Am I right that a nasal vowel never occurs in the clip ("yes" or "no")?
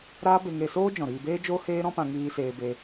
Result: no